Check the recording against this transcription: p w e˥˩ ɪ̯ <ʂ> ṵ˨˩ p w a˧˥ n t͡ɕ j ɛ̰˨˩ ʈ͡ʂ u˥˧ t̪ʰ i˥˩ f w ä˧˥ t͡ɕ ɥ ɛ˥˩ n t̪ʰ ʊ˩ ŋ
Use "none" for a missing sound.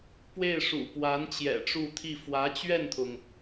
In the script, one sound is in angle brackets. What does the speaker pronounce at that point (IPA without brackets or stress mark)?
ʂ